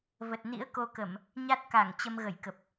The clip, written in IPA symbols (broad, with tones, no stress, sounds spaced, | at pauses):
v ə˨˩ t̚ n ḭ˧˥ ə̯ k o˧ k ə˧˩˨ m | ɲ a˦˥ t̚ k a˧˩ ŋ t͡ɕ ə˧ m ɣ ə˧˩ j k ə˨˩ p̚